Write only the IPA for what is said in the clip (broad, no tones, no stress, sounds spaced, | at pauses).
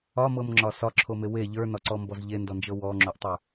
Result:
ɒ m ɤ m ŋ͡ǁ ɒ s ɒ ǁʰ o m e w e ʎ ə˞ n ɒ ǀ ɔ m b ɔ z ʎ e n d ɔ n d͡ʒ ɤ w ɔ ŋ͡ǁ o ʔ tˤ ə˞